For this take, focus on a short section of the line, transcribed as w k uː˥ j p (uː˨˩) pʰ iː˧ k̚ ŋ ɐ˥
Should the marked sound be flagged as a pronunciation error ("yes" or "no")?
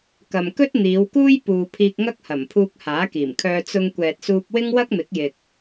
yes